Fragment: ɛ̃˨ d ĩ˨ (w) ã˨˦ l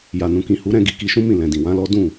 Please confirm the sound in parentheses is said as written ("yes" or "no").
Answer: yes